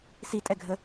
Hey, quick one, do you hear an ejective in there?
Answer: yes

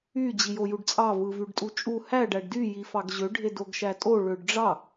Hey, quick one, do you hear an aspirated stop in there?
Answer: no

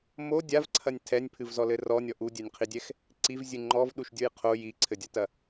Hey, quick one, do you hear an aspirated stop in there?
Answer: yes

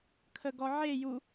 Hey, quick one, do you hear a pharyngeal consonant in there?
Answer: yes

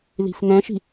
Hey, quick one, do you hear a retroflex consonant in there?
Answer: no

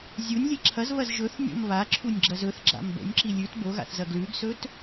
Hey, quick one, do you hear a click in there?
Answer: yes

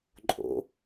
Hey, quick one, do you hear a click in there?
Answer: yes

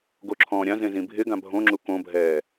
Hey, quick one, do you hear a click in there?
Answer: yes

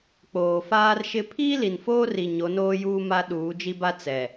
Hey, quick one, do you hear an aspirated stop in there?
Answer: yes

